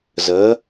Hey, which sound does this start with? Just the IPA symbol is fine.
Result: z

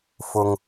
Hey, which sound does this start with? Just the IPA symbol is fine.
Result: f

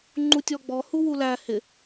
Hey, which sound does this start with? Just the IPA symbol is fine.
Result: ŋ͡ǃ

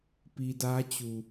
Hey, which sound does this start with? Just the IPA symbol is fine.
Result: p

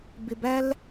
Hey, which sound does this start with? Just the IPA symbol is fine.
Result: b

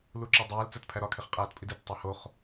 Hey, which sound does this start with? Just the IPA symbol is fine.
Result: l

